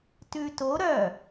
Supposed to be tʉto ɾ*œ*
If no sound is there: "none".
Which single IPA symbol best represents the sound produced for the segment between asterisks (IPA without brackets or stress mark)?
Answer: œ